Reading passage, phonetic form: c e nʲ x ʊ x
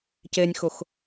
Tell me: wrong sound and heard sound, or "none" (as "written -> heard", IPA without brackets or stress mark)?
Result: none